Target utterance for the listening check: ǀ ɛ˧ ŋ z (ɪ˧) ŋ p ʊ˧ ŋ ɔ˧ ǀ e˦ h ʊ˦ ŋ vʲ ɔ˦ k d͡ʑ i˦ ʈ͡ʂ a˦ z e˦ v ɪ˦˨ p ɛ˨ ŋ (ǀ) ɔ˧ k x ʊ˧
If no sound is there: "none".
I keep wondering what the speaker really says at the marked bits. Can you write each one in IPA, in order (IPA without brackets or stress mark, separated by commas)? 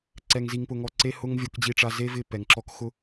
i˧, ǁ